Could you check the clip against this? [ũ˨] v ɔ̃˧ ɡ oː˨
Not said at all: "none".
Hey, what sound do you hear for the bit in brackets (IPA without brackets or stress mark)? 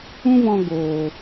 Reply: ũ˦